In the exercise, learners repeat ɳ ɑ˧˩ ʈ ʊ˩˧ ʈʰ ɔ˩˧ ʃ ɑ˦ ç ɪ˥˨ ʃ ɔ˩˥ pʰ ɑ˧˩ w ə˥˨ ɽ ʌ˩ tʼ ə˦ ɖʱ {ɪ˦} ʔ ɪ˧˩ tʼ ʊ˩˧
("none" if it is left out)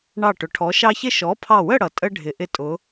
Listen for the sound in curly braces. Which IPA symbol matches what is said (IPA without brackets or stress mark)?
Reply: ɪ˩˧